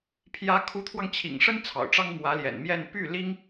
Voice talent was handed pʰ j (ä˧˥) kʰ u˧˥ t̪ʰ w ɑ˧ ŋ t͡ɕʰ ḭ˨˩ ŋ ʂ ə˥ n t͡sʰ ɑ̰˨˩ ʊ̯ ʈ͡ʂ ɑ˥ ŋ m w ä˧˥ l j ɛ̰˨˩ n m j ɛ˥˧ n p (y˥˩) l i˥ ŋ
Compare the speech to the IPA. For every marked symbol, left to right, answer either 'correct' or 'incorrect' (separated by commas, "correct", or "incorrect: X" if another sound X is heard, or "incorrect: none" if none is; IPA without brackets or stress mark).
correct, correct